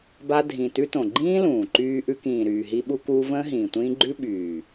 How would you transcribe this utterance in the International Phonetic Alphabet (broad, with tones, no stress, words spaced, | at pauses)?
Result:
ba˧dʱĩ˨ tʉ˧tõ˨ɡ͡ǃĩː˦ lũː˨ǃyː˧ ʔʉ˧ kĩː˨ɾyː˨ ɦi˧ɓu˧kuː˧ və̃ː˦ɦĩː˨tʷĩː˦ ɡ͡ǃʉ˦ ɓyː˨